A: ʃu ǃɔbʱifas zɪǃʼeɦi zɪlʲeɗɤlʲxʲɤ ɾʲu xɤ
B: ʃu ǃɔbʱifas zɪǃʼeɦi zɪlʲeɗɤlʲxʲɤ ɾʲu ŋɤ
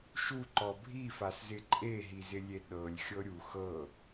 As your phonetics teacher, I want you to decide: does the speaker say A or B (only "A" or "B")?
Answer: A